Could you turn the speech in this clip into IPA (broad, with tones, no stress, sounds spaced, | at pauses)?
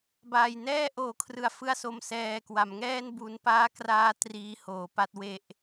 b aː˨˩ j n ɛː˥˩ ʔ oː˩˦ kʰ r ɯ˩˦ a̯ f ɯ˦˥ a̯ s o˧ m s ɛː˧ k w a˩˦ m ŋ ɛː˥˩ n b u˩˦ n p aː˦˥ k r aː˧ t r iː˧ h oː˩˦ p a˦˥ t̚ w e˦˥ ʔ